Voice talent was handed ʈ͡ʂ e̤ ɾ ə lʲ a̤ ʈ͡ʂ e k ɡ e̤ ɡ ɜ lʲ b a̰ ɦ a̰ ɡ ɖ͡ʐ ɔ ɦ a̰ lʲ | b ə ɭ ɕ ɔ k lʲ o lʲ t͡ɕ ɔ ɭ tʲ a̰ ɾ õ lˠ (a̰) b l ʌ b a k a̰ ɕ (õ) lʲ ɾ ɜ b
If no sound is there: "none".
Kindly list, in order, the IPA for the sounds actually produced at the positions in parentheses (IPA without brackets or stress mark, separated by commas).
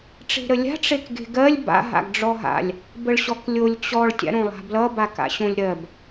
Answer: a̤, õ